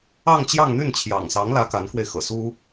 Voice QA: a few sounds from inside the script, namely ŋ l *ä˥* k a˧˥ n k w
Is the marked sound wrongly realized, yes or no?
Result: yes